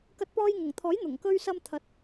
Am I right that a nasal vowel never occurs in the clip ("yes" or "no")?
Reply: yes